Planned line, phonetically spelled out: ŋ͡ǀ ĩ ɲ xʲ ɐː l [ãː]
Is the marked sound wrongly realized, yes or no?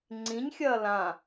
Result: yes